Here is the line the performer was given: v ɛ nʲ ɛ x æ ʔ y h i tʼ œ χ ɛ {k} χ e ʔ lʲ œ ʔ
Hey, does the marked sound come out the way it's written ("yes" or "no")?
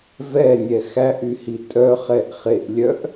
no